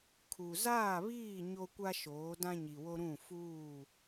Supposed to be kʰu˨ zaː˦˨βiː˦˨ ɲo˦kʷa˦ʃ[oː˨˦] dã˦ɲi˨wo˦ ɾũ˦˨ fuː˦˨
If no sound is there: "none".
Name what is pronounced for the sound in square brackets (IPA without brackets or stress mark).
oː˨˦